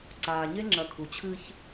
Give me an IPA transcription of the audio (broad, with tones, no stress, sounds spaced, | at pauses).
ǀ aː˨ ɲ e˦ ŋ͡ǁ ɐ˨ kʰ u˨ t͡ɕʰ ɨː˦ ç